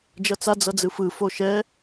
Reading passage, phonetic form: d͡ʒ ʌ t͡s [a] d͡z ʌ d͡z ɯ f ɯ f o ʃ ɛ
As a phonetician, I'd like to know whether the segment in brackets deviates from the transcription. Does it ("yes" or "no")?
no